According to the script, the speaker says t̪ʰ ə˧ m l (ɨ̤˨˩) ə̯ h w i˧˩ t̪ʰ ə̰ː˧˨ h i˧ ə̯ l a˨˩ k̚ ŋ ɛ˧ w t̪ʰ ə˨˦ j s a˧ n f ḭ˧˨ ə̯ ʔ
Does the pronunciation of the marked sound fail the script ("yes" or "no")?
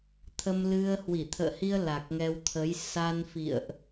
yes